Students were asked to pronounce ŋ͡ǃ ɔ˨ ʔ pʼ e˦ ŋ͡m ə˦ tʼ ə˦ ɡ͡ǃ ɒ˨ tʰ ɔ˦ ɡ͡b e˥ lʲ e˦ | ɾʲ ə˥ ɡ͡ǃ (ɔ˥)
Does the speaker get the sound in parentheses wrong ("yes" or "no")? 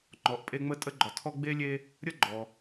yes